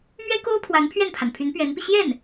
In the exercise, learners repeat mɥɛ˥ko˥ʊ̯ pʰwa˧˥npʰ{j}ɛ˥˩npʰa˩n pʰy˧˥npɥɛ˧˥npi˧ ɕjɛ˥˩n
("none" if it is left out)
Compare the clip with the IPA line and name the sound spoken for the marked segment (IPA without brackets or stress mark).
ɥ